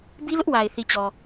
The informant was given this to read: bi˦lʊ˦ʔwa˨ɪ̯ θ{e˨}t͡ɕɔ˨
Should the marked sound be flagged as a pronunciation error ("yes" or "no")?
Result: yes